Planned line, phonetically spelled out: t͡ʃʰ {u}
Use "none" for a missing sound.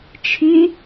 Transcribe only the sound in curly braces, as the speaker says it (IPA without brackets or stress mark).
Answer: y